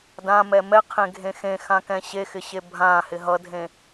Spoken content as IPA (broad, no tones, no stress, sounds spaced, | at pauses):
d ã m ɛ m ɛ qʰ ẽ ɡʱ ẽ x ẽ x ã k ɛ̃ ɕ e x ɪ ɕ e bʱ ã h ɪ ɦ ʌ dʱ ẽ